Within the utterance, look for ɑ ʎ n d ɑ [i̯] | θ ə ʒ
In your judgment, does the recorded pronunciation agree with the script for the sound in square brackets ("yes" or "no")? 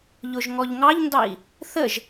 yes